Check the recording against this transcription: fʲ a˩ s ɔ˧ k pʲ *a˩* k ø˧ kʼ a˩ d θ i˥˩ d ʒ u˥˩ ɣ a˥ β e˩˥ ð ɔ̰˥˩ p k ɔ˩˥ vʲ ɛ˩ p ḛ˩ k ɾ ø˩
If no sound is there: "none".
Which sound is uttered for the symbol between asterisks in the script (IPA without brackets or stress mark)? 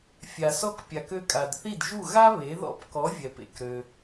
a˩